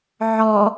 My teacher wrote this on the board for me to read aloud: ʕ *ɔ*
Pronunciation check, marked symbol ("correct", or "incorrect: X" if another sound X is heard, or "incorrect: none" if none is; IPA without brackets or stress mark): correct